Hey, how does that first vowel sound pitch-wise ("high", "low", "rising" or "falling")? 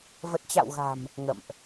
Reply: low